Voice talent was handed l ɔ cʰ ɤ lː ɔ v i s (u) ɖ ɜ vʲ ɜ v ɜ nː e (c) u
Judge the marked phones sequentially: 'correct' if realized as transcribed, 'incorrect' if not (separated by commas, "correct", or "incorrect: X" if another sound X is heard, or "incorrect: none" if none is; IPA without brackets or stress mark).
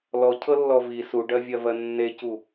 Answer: correct, correct